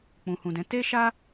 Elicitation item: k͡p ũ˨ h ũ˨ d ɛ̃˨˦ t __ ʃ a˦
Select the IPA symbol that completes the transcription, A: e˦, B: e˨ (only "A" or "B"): A